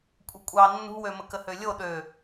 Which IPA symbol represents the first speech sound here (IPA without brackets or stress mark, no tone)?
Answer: kʷʼ